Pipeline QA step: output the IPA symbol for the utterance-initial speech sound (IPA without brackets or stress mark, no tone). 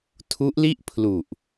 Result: tʰ